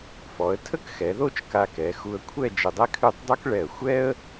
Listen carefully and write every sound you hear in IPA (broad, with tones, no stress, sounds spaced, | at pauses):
f ɔ˩˧ ə̯ tʰ ə˥ k x ɛ˩˧ ð o˥˧ t͡ʃ k a˧ k ɛ˩˧ x u˧ ə̯ kʷʰ ɛ˥˧ d͡ʒ ə˧ dˤ ɛ˥ kʰ ʉ˥˧ tˤ dˤ u˥ k ɭ ɛ˧˩ ə̯ xʷ ɛ˥ ə̯